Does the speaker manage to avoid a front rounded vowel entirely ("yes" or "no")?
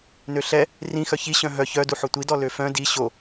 no